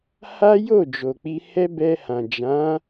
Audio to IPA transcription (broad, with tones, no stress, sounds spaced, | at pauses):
h a˦ j o˦˨ d͡ʒ o˨ k͡p i˧ h ɛ˦ b ɛ˧ h ã˨ d͡ʒ ã˨˦